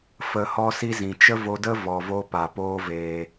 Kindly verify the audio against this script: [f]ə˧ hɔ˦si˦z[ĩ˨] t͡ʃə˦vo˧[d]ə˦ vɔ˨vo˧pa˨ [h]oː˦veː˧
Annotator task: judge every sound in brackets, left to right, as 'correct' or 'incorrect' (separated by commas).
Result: correct, correct, correct, incorrect